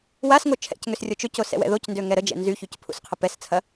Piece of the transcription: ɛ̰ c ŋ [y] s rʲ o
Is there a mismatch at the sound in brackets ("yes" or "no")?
yes